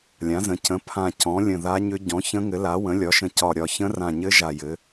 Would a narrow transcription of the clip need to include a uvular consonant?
no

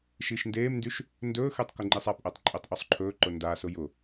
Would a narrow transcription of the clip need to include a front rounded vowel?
yes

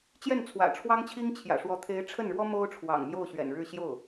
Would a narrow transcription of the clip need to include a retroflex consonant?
yes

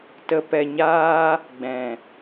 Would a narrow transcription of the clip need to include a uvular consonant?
no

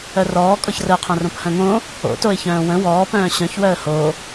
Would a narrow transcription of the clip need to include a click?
no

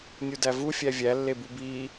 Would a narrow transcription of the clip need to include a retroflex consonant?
no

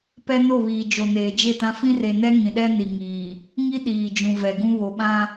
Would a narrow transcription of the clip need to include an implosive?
yes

